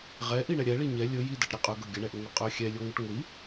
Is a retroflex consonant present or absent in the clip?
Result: present